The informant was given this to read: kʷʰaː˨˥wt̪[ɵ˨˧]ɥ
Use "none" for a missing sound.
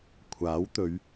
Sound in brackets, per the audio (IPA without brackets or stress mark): ɵ˨˧